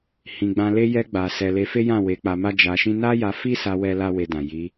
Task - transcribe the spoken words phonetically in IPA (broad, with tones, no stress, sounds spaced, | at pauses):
h ĩ˨ ɡ͡b ã˧ l e˧ j ɛ˧ ɡ͡b a˨ s ɛ˨ l e˧ f e˦ j ã˦˨ w e˨˦ k͡p a˧ m a˦ d͡ʒ a˧ ʃ ĩ˦ n a˦ j a˧ f i˦ s a˧ w ɛ˦ l a˦ w e˧ d ã˨ j i˨˦